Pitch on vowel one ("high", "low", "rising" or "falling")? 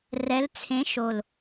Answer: rising